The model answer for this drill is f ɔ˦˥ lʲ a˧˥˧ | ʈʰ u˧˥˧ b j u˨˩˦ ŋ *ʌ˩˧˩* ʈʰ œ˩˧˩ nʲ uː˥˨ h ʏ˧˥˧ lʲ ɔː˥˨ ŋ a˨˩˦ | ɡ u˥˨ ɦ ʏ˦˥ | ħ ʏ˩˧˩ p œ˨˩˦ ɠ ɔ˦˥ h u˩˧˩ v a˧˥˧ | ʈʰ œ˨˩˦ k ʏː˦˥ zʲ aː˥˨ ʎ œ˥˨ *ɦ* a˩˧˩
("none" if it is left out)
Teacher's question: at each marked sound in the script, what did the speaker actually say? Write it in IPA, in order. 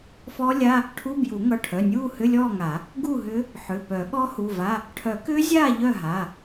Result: ʌ˩˧˩, ɦ

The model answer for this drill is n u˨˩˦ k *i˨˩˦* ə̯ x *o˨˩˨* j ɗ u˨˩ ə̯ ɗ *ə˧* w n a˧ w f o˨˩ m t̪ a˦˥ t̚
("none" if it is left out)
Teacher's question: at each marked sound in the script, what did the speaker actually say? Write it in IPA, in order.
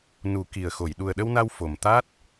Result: i˨˩, o˨˩˨, ə˧

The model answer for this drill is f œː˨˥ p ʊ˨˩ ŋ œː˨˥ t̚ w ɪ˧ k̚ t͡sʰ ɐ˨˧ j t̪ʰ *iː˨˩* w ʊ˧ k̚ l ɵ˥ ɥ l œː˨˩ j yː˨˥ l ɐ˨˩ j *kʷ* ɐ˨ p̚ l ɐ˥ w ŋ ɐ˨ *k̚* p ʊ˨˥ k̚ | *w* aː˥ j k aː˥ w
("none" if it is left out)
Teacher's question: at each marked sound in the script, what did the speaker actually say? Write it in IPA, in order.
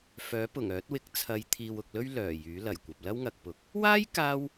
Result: iː˨, kʷ, k̚, w

